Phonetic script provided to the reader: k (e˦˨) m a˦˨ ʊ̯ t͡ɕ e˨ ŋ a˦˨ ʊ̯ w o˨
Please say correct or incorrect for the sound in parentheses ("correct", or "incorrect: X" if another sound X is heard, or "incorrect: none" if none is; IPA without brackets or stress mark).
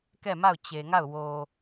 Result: incorrect: ɛ˦˨